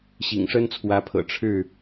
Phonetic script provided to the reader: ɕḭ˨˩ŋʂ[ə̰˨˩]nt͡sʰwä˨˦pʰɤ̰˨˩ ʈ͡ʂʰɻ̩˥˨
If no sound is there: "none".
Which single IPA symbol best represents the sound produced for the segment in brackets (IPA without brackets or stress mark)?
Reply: ə˦